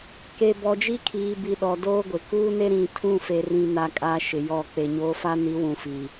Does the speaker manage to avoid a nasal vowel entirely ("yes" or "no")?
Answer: no